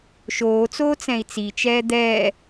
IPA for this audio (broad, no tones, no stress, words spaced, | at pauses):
ʃoːt͡soː t͡sɛ̃i̯t͡sit͡ʃɛː d̪ɛː